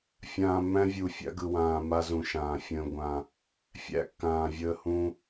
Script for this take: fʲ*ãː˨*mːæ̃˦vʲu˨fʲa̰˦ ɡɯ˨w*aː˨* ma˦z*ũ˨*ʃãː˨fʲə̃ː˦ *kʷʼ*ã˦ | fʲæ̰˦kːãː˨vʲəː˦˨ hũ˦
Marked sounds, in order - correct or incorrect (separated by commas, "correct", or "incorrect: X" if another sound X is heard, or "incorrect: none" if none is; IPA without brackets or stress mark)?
correct, incorrect: ãː˨, correct, incorrect: ɡʷ